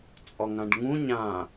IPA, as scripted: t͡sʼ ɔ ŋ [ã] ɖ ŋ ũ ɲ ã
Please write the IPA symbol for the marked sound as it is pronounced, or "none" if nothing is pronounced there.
ã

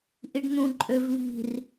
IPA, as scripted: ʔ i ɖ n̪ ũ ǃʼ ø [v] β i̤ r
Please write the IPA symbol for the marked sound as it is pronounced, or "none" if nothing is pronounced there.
v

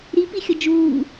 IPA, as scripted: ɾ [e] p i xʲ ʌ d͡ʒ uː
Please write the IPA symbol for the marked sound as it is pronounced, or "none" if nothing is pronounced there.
i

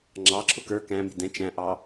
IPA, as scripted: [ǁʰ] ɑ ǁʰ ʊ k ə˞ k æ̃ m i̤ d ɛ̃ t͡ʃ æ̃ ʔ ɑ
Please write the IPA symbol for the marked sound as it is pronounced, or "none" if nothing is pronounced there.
ŋ͡ǁ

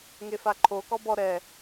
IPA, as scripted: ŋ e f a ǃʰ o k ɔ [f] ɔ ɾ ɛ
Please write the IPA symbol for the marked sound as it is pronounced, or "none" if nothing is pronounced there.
b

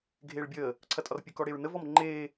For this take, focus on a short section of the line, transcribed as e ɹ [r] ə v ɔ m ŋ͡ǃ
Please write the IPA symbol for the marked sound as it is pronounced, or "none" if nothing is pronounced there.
n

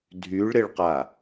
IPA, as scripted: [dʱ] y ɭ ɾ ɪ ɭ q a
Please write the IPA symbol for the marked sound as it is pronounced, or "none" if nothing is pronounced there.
dʱ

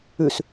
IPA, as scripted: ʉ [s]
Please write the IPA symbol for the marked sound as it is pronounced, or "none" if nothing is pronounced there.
s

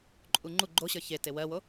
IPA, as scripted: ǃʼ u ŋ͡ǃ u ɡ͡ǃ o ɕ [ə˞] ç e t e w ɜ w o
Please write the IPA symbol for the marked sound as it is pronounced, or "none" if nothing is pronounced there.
ə˞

